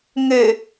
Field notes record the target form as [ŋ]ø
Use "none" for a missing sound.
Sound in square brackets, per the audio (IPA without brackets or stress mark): ŋ